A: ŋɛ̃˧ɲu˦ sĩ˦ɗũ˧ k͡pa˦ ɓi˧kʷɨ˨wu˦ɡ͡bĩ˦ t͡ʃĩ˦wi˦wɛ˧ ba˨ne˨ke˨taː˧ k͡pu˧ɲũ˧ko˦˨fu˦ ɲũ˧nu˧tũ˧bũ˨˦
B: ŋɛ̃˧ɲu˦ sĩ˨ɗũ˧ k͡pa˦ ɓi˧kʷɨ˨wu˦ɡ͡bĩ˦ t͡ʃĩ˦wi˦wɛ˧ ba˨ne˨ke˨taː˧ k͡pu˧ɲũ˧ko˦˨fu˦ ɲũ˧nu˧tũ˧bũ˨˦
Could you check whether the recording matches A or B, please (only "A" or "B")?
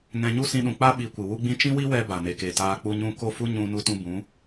A